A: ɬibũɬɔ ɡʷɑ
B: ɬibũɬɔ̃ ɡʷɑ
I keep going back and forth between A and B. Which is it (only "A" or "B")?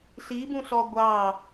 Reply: A